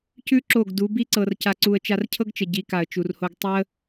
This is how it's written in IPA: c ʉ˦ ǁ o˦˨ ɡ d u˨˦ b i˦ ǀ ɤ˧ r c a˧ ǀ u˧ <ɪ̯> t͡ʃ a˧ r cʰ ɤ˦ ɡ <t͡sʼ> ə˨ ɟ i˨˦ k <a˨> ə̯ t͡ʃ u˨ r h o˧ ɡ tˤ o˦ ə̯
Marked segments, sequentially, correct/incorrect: incorrect: ə̯, incorrect: t͡ʃ, correct

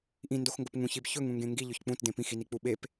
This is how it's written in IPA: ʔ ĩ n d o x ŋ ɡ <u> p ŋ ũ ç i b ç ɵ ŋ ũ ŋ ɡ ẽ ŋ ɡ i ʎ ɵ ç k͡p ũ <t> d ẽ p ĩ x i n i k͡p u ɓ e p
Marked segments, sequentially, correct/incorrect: incorrect: o, correct

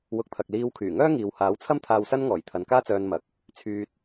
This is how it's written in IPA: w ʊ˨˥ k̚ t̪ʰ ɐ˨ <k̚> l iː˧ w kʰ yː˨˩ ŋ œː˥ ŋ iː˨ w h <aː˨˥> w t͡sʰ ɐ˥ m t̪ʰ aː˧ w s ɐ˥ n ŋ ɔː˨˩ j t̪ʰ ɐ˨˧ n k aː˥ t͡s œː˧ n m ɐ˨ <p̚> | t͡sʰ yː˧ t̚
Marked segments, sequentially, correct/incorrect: correct, correct, incorrect: k̚

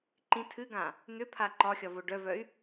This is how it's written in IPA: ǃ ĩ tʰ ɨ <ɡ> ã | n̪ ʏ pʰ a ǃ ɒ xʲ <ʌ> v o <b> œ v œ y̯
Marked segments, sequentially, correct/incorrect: correct, incorrect: ɒ, incorrect: ɖ

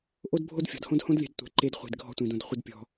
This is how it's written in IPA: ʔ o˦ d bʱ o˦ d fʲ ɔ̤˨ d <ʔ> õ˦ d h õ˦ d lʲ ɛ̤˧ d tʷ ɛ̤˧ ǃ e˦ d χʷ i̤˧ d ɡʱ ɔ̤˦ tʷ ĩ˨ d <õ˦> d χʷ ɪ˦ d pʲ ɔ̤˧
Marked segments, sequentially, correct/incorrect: incorrect: h, incorrect: õ˧

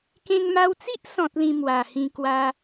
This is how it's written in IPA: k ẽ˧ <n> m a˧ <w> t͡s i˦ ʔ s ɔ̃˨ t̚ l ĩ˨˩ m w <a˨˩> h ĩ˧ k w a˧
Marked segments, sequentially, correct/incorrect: incorrect: ŋ, correct, correct

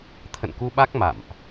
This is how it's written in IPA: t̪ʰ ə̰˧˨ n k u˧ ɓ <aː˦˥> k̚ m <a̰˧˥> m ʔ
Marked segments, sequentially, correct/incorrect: incorrect: a˦˥, incorrect: a̰˧˨

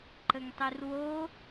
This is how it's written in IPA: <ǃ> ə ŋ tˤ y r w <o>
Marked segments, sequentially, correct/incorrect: correct, correct

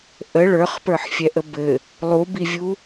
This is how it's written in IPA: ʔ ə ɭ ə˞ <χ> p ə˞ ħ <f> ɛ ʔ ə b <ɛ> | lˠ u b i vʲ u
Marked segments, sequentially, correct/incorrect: correct, incorrect: fʲ, incorrect: ɘ

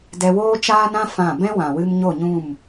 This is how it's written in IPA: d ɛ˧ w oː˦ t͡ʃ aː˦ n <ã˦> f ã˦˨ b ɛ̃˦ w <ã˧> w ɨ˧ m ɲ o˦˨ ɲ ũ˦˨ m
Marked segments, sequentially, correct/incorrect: correct, incorrect: ã˨

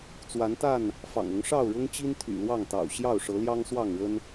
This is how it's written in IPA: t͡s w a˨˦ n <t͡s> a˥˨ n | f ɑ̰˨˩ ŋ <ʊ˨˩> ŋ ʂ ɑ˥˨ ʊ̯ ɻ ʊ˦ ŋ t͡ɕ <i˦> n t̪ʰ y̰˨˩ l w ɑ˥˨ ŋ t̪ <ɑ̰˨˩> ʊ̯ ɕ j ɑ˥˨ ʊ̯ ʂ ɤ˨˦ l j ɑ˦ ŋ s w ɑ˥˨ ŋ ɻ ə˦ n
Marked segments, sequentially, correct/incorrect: incorrect: t̪, incorrect: ʊ˨˦, correct, correct

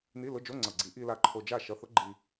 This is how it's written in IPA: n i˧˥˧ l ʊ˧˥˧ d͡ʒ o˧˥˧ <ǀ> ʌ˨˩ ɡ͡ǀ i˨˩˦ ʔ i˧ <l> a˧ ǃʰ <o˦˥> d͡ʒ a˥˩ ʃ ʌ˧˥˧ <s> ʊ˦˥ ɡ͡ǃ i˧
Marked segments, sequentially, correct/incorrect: incorrect: ŋ͡ǀ, correct, incorrect: o˧, incorrect: θ

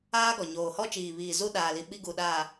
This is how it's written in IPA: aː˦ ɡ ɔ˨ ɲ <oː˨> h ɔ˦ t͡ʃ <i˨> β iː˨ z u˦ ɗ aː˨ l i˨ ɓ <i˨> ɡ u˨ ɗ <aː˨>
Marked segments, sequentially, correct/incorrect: correct, incorrect: iː˨, incorrect: i˦, correct

